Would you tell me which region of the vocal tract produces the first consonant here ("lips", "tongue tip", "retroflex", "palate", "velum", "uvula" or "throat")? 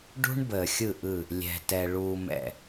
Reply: retroflex